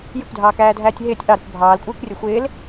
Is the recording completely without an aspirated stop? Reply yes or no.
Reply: yes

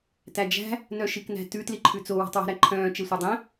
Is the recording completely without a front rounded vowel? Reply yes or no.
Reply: no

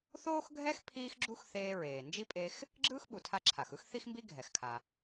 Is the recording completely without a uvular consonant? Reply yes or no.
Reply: yes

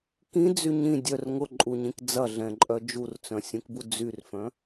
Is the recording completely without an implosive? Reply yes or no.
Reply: yes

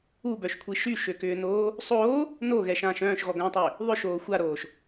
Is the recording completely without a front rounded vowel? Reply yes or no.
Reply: no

